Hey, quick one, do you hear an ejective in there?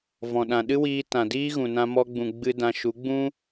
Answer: no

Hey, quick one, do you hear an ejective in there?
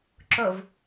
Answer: no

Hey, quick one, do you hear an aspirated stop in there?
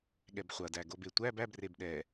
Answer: no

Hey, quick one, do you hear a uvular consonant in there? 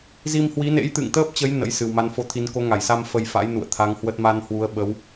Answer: no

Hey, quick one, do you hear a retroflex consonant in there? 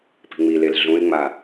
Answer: no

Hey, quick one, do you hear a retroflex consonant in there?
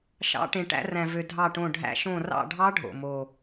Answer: yes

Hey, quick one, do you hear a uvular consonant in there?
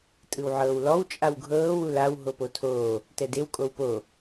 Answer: no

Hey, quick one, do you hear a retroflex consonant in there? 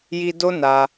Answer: no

